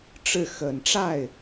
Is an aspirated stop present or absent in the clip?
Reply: absent